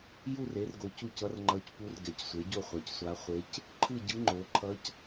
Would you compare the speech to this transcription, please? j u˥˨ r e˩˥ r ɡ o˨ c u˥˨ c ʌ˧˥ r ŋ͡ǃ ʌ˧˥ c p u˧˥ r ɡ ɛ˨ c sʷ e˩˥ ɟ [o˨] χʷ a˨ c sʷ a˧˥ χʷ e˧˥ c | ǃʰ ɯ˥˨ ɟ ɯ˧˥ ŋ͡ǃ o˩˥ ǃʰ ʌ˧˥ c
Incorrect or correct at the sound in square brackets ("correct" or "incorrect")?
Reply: incorrect